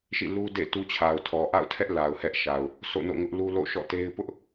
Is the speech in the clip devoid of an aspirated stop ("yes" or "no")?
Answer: no